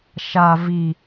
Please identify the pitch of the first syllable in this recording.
low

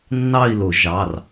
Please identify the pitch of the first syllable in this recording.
falling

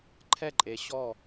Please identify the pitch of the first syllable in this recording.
falling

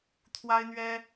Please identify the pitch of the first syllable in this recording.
high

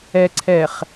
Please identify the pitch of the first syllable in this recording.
low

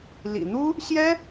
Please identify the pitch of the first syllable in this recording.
low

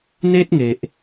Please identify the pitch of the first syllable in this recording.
high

